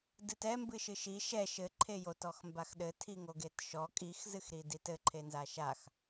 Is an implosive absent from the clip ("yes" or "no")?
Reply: no